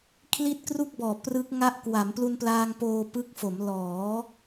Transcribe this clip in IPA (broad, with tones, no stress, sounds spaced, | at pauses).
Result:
kʰ l i˦˥ t̚ k r u˥˩ k̚ b ɔː˨˩ p r ɯ˦˥ k̚ ŋ a˥˩ ʔ k w a˩˦ m p l u˧ n p l aː˧ ŋ p oː˧ p ɯ˦˥ k̚ f o˩˦ m l ɔː˩˦